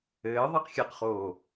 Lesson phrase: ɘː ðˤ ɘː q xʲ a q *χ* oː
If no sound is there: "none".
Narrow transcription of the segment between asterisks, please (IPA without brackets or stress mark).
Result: χ